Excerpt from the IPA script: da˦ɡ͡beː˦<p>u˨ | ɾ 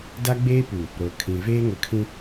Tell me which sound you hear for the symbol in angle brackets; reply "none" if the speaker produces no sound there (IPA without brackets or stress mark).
p